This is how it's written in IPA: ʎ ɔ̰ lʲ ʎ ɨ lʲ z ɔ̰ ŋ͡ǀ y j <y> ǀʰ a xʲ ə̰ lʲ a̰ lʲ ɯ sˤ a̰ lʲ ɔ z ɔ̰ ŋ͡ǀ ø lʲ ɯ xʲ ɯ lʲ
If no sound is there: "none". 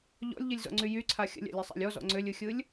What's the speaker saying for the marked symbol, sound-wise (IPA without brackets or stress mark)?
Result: y